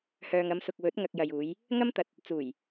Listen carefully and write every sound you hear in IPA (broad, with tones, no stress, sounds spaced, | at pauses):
h œː˨ ŋ ɐ˨˧ m s ʊ˨ k̚ w ɵ˨˥ t̚ ŋ ɐ˧ k̚ j ɐ˨ j uː˨˧ j | ŋ ɐ˥ m t̪ ɐ˨ t̚ | t͡s uː˨˩ j